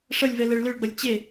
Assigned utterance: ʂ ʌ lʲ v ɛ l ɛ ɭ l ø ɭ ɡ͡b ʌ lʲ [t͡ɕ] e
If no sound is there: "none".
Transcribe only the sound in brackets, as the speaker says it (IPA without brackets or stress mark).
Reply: t͡ɕ